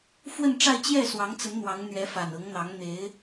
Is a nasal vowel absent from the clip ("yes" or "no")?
yes